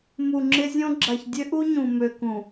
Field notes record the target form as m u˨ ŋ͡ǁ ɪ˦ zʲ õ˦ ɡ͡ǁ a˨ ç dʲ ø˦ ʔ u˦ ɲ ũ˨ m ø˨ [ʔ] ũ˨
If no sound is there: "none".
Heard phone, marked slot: k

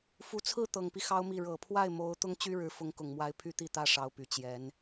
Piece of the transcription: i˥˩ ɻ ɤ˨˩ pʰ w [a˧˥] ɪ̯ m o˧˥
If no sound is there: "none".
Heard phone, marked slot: a˥˩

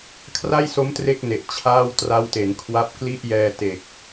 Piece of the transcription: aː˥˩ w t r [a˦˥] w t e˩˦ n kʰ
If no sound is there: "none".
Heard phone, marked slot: a˦˥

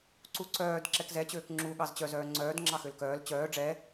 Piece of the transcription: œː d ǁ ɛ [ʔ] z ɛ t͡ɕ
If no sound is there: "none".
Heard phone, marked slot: k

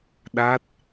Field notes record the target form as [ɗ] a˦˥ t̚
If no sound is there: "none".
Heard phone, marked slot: ɗ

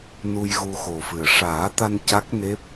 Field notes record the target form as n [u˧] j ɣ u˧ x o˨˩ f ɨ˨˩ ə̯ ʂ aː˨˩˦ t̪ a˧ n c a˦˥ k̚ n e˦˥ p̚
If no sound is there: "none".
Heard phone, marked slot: u˧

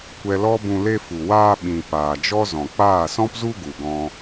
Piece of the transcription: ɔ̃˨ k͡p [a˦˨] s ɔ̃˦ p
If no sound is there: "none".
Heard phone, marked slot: aː˦˨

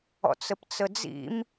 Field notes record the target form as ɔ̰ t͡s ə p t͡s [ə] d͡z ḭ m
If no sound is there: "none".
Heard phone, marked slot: ə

